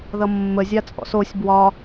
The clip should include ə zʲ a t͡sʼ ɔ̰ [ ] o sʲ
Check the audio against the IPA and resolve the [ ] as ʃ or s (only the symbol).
s